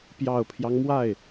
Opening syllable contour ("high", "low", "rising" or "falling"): low